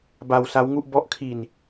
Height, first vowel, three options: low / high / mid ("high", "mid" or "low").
low